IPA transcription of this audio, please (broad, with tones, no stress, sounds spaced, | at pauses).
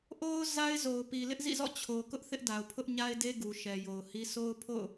ʔ o˦ ʊ̯ z a˦ ɪ̯ z o˨ ʊ̯ p i˨ l ɪ˦ ʔ z ḭ˦˨ z ɔ̰˦˨ t͡ɕʰ o˨ k ʊ˦ ʔ θ ɪ˦ ʔ d a˨ ʊ̯ pʰ ʊ˦ ʔ ɲ a˦ ɪ̯ d e˦ ɡ u˨ ʃ ɛ˨ j o˨ ʊ̯ h i˦ s o˦ ʊ̯ pʰ o̰˦˨ ʊ̯